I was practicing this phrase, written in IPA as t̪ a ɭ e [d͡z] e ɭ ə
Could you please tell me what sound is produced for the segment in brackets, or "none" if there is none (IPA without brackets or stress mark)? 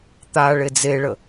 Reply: d͡z